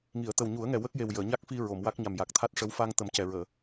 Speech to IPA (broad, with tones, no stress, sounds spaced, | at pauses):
ŋ i˨˩˨ ə̯ t̪ ə˨˩ w ɲ u˨˩˦ ə̯ ŋ ɛ˨˩ w ə˦˥ k̚ j e˨˩ w j əː˨˩˨ ɲ a˦˥ k̚ f i˧ ɹ o˨˩˨ m w a˦˥ k̚ ɲ a˨˩ m j a˨˩ k̚ t̪ʰ a˦˥ t̚ ʂ ə˧˥ w f a˧ ŋ t̪ ə˨˩˦ m c ɛ˨˩ ɹ əː˨˩˨